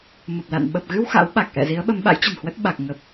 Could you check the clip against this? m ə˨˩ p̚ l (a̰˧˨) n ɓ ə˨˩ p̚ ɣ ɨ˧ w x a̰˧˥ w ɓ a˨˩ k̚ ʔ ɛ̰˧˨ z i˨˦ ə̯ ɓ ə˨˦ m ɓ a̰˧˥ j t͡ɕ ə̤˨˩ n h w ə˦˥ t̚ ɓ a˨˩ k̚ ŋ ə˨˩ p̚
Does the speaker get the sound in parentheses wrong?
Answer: no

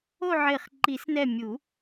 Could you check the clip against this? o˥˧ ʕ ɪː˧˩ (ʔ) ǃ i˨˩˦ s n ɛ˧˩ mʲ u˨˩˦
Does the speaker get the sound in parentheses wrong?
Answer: yes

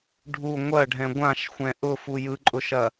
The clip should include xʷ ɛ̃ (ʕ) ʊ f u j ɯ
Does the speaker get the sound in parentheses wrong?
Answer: yes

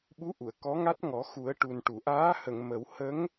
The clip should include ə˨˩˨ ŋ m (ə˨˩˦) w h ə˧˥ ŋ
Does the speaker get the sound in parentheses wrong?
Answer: no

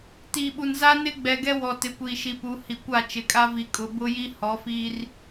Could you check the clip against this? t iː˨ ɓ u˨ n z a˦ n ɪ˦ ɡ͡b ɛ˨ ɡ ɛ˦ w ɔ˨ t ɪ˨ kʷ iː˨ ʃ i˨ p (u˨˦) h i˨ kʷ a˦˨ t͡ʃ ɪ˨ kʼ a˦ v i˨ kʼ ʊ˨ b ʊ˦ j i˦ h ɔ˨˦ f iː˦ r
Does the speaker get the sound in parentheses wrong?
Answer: no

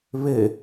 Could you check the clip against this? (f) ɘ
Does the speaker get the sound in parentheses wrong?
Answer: yes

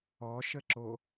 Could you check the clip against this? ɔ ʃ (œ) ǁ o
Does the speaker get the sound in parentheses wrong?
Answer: yes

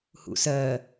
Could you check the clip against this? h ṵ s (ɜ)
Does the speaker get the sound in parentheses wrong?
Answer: no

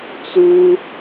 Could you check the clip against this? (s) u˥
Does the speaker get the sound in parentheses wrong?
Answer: yes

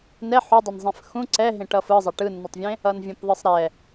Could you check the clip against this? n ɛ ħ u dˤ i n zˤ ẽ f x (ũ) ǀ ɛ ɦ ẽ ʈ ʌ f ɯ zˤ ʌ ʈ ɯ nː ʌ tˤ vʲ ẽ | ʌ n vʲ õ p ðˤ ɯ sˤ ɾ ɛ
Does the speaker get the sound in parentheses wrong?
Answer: no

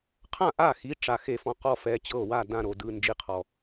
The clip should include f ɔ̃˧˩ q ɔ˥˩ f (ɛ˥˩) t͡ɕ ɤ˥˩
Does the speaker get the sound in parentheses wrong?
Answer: yes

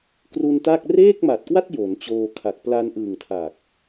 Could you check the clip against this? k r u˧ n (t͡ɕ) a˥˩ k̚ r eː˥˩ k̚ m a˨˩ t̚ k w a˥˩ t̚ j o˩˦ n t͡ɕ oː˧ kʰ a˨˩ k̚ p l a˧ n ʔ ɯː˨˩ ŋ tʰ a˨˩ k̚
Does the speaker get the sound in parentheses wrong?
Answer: yes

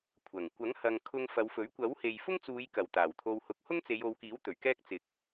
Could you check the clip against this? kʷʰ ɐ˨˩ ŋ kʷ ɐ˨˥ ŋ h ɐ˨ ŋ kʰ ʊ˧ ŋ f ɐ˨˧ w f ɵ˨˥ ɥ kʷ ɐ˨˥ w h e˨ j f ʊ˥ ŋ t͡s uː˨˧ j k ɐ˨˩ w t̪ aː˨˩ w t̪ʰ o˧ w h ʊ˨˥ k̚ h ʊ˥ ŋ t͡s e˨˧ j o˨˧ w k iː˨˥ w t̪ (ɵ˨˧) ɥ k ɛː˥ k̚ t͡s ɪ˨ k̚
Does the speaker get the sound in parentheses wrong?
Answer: yes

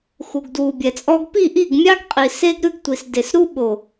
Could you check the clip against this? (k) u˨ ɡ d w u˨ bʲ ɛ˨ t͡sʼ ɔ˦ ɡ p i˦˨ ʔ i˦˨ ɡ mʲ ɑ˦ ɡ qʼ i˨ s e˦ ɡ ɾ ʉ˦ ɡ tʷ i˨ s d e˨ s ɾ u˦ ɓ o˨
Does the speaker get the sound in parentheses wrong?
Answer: yes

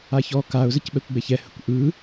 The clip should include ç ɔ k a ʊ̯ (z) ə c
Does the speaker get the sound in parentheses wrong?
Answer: no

